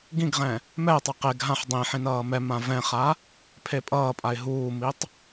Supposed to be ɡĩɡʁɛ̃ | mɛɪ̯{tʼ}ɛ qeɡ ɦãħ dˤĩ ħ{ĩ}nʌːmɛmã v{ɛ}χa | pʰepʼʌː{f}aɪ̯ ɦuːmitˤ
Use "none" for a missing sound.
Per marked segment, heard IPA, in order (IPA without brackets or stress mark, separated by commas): tˤ, ĩ, ɛ̃, pʼ